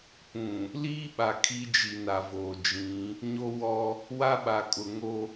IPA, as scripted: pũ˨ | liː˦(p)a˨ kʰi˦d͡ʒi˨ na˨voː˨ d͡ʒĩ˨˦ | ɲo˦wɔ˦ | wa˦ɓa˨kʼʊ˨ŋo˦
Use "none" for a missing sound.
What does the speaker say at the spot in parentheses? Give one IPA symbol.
ɓ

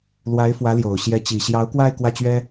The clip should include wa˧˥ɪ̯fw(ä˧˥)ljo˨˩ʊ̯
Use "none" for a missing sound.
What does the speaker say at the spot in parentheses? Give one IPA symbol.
ä˧˥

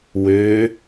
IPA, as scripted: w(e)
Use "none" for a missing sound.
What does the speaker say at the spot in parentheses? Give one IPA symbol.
ø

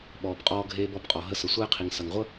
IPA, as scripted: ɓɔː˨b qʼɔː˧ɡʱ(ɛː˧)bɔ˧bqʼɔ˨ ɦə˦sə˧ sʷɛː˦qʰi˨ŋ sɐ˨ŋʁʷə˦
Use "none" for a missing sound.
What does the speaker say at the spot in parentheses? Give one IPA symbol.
eː˧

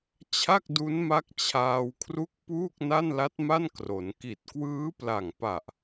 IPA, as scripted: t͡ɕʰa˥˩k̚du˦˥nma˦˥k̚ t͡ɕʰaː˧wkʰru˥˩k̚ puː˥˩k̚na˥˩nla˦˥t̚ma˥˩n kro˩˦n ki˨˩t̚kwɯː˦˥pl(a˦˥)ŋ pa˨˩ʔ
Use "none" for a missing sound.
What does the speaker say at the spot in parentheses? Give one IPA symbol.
a˨˩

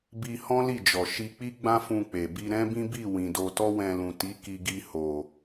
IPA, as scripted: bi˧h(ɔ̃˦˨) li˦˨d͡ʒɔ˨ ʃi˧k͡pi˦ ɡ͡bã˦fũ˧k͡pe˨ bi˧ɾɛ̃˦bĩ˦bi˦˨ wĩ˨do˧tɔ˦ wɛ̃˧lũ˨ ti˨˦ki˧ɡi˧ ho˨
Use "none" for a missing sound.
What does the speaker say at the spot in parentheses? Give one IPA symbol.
ɔ̃˦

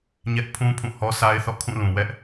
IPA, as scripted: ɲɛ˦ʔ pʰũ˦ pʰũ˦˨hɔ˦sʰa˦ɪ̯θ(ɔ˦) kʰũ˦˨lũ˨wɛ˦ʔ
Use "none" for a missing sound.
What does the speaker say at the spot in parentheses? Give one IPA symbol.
ɔ̰˦˨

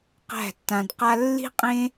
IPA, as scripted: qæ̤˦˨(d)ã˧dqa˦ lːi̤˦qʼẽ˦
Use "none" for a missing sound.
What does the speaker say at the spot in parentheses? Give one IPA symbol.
tː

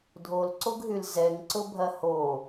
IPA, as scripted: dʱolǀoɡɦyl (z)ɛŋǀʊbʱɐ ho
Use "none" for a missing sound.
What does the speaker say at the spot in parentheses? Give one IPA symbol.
z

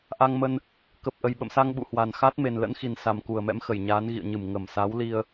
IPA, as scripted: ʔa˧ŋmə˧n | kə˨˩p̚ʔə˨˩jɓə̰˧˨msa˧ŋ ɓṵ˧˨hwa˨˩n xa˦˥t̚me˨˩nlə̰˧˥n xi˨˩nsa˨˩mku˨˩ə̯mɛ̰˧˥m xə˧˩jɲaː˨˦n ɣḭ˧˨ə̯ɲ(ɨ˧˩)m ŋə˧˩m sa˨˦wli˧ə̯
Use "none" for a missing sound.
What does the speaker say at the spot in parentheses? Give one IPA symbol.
ɨ˧˩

